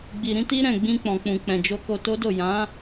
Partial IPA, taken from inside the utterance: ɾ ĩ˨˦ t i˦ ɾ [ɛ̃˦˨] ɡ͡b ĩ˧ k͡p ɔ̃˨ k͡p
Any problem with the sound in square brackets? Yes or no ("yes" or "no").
no